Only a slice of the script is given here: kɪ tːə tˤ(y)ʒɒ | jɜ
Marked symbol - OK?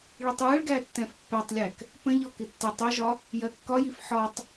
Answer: no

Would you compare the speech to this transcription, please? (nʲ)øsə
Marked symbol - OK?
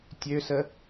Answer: no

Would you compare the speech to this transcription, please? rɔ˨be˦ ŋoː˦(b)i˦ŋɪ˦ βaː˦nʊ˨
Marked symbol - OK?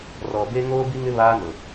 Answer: yes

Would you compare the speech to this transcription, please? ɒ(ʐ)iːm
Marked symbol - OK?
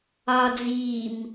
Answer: no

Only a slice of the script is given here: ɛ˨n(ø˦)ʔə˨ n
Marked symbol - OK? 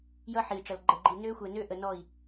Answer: yes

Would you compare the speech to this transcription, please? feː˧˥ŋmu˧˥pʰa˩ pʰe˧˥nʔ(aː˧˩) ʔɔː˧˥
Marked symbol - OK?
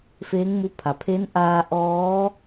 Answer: no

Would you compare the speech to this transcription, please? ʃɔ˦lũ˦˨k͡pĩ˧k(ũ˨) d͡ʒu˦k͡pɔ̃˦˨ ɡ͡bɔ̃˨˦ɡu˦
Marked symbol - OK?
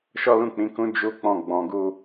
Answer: no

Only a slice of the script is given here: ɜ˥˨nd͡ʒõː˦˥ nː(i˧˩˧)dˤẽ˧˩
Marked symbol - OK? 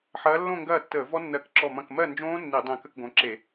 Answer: yes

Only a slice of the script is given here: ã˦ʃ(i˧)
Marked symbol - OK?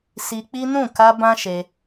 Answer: no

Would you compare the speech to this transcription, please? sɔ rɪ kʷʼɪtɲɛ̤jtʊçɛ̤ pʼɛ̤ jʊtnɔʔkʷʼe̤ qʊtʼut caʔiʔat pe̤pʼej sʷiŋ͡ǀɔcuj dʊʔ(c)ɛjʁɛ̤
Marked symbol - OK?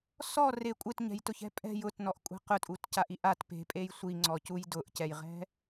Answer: yes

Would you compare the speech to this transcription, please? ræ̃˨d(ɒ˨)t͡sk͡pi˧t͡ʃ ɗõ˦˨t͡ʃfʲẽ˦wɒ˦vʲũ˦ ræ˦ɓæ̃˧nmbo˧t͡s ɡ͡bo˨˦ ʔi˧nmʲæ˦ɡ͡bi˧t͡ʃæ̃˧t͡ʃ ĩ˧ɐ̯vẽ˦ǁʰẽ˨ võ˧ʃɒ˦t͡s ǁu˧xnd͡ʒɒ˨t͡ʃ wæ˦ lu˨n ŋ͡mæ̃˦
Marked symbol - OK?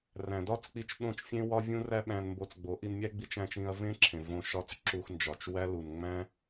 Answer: no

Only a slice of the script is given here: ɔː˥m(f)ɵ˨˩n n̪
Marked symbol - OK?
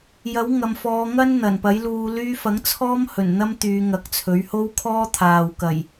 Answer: no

